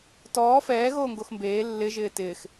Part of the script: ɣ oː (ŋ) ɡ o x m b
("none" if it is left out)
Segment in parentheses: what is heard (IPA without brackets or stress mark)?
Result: ŋ